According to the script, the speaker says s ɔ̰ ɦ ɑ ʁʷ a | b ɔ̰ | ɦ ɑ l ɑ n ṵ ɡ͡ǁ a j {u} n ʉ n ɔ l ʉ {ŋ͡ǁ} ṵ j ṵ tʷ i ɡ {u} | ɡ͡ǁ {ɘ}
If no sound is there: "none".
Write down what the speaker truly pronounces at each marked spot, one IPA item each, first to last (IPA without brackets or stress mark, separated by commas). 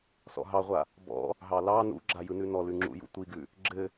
ɯ, ŋ͡ǁ, ʉ, ɘ